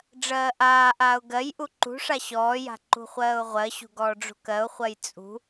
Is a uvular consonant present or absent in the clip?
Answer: present